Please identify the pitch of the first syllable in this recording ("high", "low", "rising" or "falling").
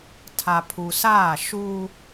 low